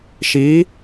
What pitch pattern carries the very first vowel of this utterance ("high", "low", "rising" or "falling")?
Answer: rising